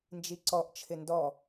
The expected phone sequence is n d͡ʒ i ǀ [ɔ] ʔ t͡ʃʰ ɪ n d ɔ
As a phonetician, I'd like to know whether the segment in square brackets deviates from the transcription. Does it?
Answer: no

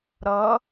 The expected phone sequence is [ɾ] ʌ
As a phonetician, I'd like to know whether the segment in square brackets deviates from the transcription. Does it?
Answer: no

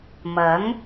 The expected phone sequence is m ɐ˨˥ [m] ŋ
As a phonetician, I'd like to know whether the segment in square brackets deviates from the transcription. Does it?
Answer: yes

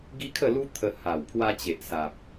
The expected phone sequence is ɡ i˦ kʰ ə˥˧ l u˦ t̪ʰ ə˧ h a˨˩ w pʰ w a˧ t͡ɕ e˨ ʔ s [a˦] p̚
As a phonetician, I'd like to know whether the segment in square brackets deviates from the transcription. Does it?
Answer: yes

